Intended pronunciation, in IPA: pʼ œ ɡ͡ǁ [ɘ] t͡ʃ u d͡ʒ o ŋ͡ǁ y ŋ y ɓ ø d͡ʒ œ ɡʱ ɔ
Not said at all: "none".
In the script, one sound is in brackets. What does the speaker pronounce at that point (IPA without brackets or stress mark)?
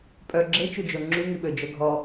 e